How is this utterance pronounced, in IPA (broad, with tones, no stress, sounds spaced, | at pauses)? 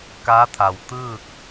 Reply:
k a˧˥ t̪ʰ a˩ w t̪ ɯː˥˨ k̚